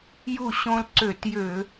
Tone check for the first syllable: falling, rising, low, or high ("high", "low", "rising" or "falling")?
falling